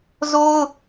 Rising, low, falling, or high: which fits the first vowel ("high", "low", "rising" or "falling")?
high